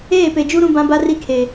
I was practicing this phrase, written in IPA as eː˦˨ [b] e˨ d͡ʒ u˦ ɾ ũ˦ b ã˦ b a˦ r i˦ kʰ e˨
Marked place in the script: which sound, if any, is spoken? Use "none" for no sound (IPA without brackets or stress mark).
p